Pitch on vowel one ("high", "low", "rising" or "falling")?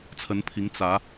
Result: rising